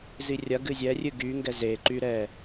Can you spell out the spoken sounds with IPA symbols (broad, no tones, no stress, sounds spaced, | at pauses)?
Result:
z i rʲ ɐ ɡ ɨ zʲ ɛ rʲ ɨ ɡ y ŋ ɡ ɛ z e ǃ y ɾ ɛ